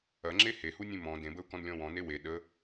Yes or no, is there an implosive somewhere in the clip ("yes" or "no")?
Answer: yes